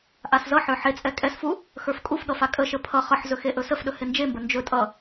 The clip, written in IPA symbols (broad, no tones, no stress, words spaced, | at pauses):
ʔaszʌħə˞ ħet͡sʼɛ kʼɛsfu | xə˞fkʼufɠʌ fakʼəʃə pʰʌ χʌħzɵ xeʔɵsəfɗɵ hɪnd͡ʒembə nd͡ʒɵ tʼʌ